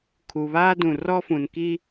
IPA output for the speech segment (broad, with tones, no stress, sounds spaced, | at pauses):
kʰ u˨ β aː˦ d ũ˨ r ɔ˦ f ũ˨ n k i˦